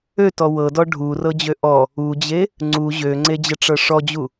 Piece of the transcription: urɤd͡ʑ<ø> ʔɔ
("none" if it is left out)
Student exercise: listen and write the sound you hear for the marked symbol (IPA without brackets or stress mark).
ø